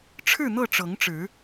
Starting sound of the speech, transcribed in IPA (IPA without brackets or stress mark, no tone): ʈ͡ʂʰ